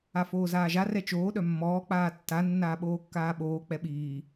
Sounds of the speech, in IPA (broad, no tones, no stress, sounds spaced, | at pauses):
a f oː z aː ʒ a r ɛ t͡ʃ oː ɗ œ mː ɔː k͡p aː tː a nː aː ɓ oː kː aː ɓ oː k͡p ɛ ɓ iː